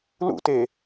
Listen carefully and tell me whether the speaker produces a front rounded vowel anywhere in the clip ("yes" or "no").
no